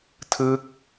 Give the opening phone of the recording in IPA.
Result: tʰ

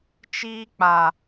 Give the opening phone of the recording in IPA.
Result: t͡ʃ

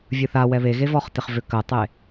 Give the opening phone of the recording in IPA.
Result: vʲ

